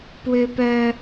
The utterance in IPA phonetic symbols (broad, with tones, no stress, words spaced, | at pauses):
pwʏ˦pœ˦